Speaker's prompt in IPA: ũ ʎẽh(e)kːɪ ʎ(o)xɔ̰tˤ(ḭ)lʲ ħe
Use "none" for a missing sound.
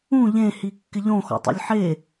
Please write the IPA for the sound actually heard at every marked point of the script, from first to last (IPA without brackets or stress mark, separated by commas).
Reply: i, õ, ḭ